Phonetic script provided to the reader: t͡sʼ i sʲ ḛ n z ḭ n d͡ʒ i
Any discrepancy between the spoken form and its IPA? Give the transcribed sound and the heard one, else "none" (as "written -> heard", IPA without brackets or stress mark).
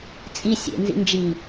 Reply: none